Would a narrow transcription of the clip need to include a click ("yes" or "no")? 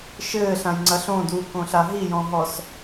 yes